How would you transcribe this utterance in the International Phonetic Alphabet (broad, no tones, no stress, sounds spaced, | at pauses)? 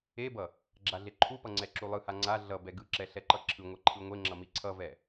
e b ʌ | ɡ͡ǁ a ɮ e ǃʰ u p ʌ ŋ͡ǀ ɛ ǁ u lˠ ɯ h a ŋ͡ǀ a ɮ ʌ b ɛ ɡ ɯ ǁ ɛ ɬ ɛ ǃ ʌ ǁʰ ɯ ŋʷ ɛ ǃʰ ɯ ŋʷ e ŋ͡ǁ ʌ m i ǀʰ ʌ v ɛ